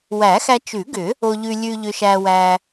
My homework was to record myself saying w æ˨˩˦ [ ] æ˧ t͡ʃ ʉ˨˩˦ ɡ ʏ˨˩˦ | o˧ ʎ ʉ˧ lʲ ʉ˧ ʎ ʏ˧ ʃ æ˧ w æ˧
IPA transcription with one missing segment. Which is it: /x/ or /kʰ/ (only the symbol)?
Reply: x